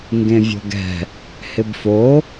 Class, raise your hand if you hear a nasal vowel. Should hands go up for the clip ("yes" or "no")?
yes